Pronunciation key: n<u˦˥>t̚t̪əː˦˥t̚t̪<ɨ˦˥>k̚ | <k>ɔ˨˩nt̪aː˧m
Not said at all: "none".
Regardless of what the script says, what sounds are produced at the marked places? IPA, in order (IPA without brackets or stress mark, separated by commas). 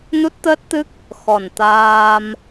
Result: u˦˥, ɨ˦˥, x